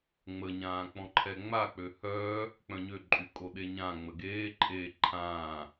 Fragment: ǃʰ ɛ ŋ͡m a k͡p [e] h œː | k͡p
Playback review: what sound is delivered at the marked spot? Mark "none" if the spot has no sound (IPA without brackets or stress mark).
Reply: ø